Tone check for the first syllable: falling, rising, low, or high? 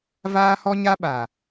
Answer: high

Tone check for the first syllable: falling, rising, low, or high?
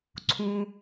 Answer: low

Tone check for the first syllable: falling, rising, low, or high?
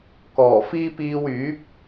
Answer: low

